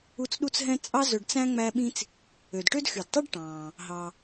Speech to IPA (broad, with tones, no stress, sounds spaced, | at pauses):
u˦ t͡s ɗ u˥ t͡s ɦ ɛ̃˥ t͡sʼ ɑ˦ z ɵ˨ ɖ t͡s æ̃˥ ŋ͡m æ˦ ɓ ĩ˥ t͡s | ø˩ d ʈ ø˦ d x y˩ d tˤ œ˥ ɖ ʈ ɑ̃ː˩ | ɦ ɑ˩